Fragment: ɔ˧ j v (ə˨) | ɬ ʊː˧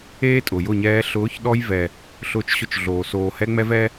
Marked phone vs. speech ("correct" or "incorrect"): incorrect